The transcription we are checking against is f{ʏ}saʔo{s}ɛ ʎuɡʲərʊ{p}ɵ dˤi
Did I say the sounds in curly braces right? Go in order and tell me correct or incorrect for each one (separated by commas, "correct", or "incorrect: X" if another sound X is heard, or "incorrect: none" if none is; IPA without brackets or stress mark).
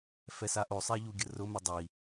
incorrect: ɛ, incorrect: sˤ, incorrect: m